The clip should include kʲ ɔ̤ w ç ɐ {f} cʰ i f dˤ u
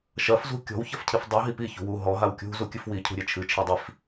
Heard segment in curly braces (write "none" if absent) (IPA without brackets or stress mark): f